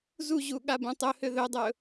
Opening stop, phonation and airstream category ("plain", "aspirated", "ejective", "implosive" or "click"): implosive